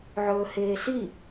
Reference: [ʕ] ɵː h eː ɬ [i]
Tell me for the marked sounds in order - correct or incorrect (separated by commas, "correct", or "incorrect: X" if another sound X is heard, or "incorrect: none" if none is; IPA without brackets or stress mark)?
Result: correct, correct